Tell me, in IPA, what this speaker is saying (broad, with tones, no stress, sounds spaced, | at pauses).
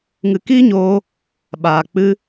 ŋ ɨ˧ k iː˦ ɲ oː˧ | ɓ aː˨ k͡p ɨ˧